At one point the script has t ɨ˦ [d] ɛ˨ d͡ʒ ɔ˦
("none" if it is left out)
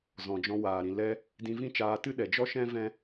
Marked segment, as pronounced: ɗ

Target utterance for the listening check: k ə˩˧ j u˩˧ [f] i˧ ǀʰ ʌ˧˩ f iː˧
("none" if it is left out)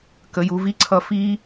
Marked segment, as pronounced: v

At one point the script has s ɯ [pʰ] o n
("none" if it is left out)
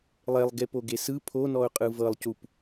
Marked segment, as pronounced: pʰ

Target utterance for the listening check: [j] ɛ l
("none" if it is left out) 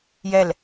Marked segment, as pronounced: j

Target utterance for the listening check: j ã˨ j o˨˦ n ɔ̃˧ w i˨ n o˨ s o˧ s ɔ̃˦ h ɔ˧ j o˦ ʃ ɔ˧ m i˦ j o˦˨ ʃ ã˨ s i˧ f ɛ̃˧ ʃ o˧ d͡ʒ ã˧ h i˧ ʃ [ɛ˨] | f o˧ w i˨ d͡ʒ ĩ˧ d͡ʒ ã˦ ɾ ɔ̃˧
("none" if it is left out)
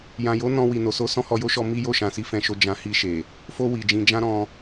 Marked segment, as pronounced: e˨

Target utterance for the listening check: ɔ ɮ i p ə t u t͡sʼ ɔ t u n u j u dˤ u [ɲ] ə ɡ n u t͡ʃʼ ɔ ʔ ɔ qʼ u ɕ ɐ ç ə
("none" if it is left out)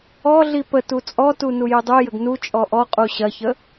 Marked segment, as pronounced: j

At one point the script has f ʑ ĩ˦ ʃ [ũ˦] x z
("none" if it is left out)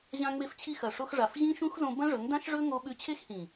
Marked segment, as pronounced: ũ˦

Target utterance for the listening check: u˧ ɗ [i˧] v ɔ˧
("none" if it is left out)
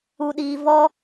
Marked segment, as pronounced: iː˧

